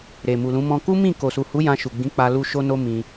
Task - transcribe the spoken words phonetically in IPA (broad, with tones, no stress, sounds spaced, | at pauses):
ɾ e˨ m u˨ l ũ˨˦ m ɔ̃˧ k u˦ m ĩ˦˨ k o˨ s u˨ h u˨˦ j ã˧ ʃ u˨ ɡ͡b ĩ˨˦ k͡p a˧ l u˧ ʃ o˧ n o˧ m ĩ˧